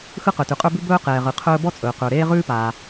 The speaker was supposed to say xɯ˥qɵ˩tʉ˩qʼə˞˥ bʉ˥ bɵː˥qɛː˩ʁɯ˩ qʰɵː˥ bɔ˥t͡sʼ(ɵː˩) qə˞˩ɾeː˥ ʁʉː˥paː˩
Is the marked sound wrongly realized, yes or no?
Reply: no